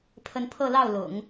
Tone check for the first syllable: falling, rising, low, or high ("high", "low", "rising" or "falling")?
rising